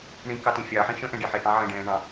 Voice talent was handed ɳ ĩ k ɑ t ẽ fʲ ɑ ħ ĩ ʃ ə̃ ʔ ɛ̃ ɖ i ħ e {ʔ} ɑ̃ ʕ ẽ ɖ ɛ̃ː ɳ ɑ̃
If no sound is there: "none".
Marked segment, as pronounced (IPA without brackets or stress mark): ʔ